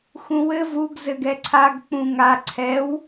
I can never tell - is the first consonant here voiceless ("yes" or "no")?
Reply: yes